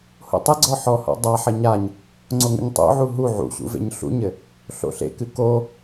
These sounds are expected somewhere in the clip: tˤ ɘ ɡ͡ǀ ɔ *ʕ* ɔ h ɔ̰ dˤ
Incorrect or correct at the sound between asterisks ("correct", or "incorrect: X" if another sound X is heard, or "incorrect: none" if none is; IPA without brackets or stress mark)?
incorrect: ħ